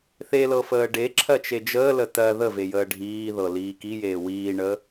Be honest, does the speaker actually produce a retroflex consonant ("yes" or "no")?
yes